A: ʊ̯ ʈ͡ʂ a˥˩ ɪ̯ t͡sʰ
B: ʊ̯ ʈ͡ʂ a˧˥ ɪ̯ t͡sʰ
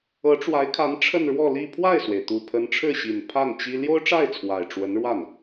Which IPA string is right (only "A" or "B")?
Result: A